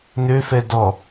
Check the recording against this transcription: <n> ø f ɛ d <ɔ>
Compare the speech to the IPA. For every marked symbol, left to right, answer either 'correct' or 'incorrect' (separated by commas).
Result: correct, correct